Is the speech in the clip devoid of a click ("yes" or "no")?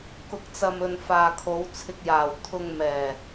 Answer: yes